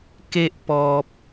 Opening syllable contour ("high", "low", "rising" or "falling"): high